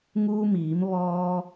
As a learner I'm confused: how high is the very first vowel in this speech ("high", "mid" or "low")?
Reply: high